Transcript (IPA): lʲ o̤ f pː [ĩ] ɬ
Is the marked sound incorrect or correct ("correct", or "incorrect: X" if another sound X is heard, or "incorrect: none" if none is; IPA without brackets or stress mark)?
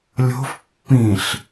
correct